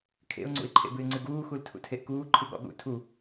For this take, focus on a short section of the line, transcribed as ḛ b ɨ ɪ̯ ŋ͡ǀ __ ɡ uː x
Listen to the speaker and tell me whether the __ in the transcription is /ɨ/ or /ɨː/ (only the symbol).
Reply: ɨ